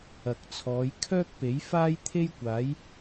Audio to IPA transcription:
ɐ˨ k̚ t͡sʰ ɔː˨˧ j kʰ œː˥ k̚ p e˨˥ j f aː˥ j t̪ʰ e˥ j kʷ aː˨˥ j

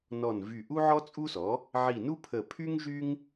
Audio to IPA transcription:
n ɔ˧˩ n v y˧˩ ʔ u˥ ʕ ɔ˥ t͡sʼ u˥ s ɔ˩˥ | ʕ i˧˩ n u˥ pʰ ə˧˩ pʰ y˥ ŋ ʒ y˥ ŋ

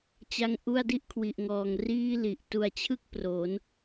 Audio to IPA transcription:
t͡ɕ a˧ ŋ ʔ u˥˩ a̯ d i˦˥ ʔ kʰ w i˨˩ ʔ ŋ ɔː˨˩ ŋ r iː˥˩ l i˨˩ ʔ t u˨˩ a̯ t͡ɕʰ ɯ˦˥ k̚ p r oː˩˦ n

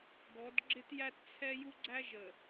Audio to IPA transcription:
ɡ ɔ˨˦ d ɡ͡ǁ ɪ˦ t j æ˦ t t͡sʰ ɛ˦ j u˦ ɡ͡ǀ æ˦ ʒ ə˨

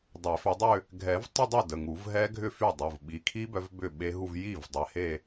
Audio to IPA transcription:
dˤ e˨˩˦ f ʏ˨˦ dˤ ʏ˥˧ | ɡʱ ɛ˨˩˦ v tˤ ɪ˥˧ dˤ o˥˩ d ə˩˧˩ ŋ u˨˩˦ v ɦ ɛ˦˥ ɡʱ ʏ˥˧ f y˥˩ dˤ u˩˧˩ v ɓ i˨˦ kʰ i˦˥ b œ˨˦ v b ʏ˥˩ ɓ e˦˥ ɦ u˥˧ v j i˥˩ v dˤ ɛ˨˦ h e˥˧

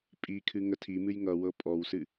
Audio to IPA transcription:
pʼ i kʰ ɨ ŋ ə tʰ i m ɨ j ŋ ʌ w ɤ pʼ ɔ w s ɨ

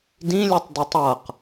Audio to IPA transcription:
d ĩ lʲ ɯ tˤ d ɯ tˤ ʌ q

